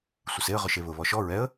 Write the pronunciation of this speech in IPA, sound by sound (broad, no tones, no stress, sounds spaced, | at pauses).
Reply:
sʷ ɪ s e ə̯ ʁ ʊ ʃ e β ʊ β ɔ ʃ ɔ ɹ ɛ ə̯